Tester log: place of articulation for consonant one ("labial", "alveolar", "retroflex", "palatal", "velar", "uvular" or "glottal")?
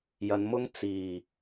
palatal